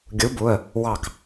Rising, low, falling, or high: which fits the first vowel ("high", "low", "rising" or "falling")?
rising